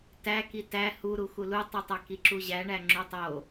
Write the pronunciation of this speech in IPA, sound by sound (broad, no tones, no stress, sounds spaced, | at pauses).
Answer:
t æ k i t æ h u ɾ u x u l u tˤ i tˤ æ k i ǁ u ʑ æ ɳ æ ŋ͡ǁ u tˤ o